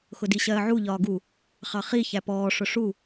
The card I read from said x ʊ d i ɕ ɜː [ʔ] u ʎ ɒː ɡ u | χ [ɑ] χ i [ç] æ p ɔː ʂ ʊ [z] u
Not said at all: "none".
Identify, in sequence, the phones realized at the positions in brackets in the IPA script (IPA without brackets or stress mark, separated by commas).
ʕ, ɑ, ç, ʂ